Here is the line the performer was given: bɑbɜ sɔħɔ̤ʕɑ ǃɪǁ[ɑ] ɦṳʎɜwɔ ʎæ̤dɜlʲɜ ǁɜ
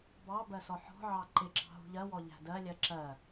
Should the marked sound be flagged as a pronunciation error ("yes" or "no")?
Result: yes